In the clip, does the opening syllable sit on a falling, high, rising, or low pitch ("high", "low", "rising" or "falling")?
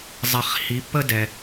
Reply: low